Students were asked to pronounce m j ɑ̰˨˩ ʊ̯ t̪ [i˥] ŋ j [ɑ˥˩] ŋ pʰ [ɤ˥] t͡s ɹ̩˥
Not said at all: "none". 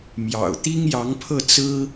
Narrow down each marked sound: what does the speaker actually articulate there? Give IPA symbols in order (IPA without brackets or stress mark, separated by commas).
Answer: i˥, ɑ˧˥, ɤ˥˩